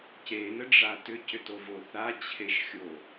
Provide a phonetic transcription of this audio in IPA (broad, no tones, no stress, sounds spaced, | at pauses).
c e n ə ɖ͡ʐ a t ʏ c ʏ t o v o θ a t͡ɕʰ e ʃ xʲ o